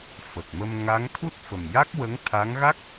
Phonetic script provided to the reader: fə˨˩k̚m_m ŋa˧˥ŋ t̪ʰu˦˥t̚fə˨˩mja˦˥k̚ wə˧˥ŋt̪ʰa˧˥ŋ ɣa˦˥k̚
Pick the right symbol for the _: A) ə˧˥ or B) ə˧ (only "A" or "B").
B